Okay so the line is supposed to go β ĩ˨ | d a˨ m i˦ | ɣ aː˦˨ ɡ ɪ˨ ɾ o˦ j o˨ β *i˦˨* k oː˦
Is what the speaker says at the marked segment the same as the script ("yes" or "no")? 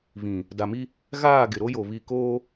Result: yes